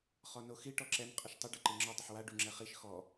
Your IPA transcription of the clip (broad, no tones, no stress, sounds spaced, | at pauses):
χ ɔ n o x i ʈ ɔ ǁ ɛ n qʼ ə ʃ tˤ ə ɖ o ǃ i ŋ͡ǁ ɔ dˤ ə ħ w a ɖ u ŋ͡ǁ ɛ χ i ʃ x ɔ